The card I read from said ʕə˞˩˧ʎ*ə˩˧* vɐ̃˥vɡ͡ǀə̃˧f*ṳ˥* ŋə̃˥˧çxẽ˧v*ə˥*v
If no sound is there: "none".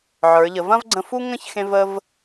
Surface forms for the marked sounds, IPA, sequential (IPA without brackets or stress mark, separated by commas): ə˩˧, u˥, ə˧